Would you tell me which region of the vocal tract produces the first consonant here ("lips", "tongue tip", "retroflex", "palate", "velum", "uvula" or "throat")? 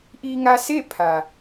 throat